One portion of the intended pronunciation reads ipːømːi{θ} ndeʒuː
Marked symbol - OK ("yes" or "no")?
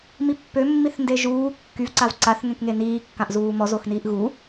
yes